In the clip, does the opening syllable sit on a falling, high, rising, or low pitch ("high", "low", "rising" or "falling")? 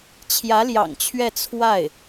rising